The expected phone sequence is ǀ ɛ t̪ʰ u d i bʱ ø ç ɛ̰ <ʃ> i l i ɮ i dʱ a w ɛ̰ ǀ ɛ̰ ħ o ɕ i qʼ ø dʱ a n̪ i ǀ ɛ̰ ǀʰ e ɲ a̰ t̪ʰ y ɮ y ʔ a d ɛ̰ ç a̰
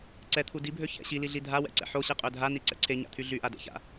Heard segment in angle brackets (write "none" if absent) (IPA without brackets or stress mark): ɕ